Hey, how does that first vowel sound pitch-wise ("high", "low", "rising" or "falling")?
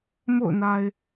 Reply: falling